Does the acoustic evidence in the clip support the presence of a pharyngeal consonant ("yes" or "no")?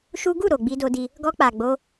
no